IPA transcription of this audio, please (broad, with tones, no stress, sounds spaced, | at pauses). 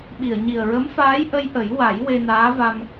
ɓ i˨˩˨ ə̯ ɲ i˨˩ ə̯ ɹ ə˧˥ m f aː˧˥ j ʔ ə˧ j ʔ ə˨˩˦ j w a˨˩˦ j w e˧ n aː˧˥ v a˧ m